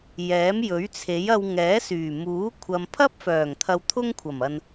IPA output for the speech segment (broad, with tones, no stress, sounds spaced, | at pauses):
j ɛː˨˥ m j ɵ˨˥ ɥ t͡sʰ e˨˥ j ɐ˧ w ŋ ɛː˨˥ s yː˨˩ m uː˨˥ kʷʰ ɐ˨ m pʰ ɐ˥ p̚ f œː˨˩ ŋ t̪ʰ ɐ˧ w t̪ʰ ʊ˥ ŋ kʷʰ ɐ˨˩ m ɐ˨ n